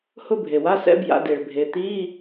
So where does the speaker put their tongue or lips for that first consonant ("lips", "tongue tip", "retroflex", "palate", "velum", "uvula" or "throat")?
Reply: throat